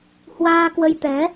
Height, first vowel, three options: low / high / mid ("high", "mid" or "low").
low